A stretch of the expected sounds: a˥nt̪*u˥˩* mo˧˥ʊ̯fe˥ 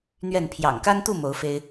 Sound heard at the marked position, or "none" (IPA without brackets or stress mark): u˥˩